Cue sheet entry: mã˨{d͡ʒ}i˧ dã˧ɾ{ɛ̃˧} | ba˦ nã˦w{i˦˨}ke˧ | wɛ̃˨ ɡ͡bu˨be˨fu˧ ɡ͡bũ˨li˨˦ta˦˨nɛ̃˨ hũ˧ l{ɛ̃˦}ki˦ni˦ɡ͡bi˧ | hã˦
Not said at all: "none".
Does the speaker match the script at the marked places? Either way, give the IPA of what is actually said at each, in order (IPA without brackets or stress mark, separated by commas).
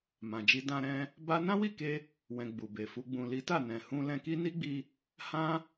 d͡ʒ, ɛ̃˧, i˦˨, ɛ̃˧